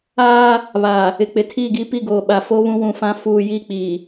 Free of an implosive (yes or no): no